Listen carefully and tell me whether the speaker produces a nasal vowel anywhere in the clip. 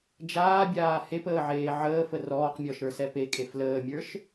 no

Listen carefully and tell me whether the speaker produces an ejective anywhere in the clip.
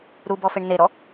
no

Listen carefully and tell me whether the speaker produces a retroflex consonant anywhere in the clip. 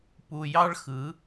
yes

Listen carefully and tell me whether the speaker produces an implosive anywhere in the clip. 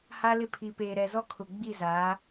no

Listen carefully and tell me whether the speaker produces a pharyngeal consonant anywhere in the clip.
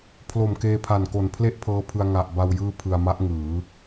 no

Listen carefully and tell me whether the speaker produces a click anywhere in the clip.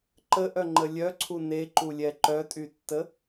yes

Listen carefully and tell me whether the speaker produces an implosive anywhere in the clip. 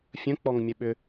yes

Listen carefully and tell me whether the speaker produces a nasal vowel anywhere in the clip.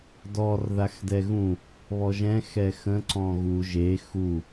yes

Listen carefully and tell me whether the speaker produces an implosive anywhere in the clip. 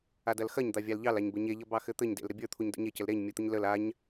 no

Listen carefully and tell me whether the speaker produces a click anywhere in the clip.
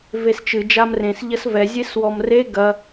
no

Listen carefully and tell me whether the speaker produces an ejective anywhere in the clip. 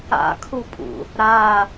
yes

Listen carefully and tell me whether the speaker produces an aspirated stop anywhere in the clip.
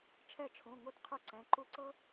yes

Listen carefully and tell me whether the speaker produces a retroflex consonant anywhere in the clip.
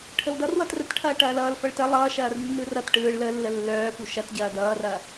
yes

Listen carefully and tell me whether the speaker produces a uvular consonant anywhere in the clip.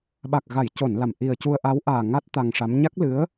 no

